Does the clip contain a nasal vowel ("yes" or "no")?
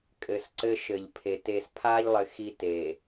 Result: no